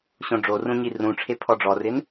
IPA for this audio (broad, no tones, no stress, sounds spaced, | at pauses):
ɕ õ ɖ͡ʐ o r ũ ɲ i r ũ ʈ͡ʂʰ e pʰ ɔ ɖ͡ʐ ɔ r ɪ n